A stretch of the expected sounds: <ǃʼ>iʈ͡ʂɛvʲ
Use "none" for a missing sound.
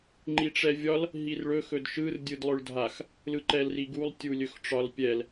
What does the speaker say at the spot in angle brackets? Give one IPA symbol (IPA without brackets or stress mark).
ŋ͡ǃ